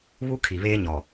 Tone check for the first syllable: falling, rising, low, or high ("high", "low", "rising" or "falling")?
high